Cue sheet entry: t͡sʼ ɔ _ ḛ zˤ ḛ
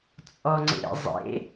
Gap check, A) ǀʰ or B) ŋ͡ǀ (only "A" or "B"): B